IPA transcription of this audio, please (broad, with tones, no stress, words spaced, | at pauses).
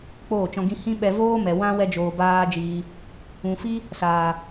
k͡poː˦˨t͡ʃɔ̃˧ ɡĩ˧hĩ˦ɓɛ˧ voː˦mɛ˨ wã˦ wɛ˦d͡ʒoː˧baː˦d͡ʒiː˧ | ũ˨fi˦ | saː˨